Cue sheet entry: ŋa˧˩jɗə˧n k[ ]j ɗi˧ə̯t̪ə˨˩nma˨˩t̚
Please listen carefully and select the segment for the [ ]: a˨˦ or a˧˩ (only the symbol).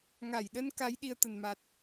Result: a˨˦